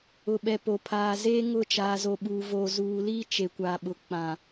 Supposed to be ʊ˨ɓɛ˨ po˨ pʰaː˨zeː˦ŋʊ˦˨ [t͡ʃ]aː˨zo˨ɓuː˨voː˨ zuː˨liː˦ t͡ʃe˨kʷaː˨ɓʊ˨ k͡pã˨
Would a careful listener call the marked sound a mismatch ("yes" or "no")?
no